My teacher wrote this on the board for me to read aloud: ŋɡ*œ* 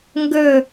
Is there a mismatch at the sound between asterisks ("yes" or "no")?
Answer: yes